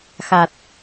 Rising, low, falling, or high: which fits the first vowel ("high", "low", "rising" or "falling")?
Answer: low